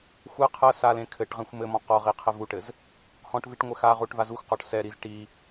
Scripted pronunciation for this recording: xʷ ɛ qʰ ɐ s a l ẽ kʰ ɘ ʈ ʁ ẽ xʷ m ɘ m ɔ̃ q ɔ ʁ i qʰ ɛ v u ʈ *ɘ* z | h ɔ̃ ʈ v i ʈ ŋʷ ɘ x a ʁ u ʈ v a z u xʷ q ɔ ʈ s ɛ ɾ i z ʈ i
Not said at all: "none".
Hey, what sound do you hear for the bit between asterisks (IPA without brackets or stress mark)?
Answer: ɘ